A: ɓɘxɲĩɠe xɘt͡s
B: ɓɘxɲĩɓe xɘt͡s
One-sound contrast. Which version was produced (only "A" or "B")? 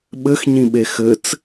B